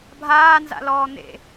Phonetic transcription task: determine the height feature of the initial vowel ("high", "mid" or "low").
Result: low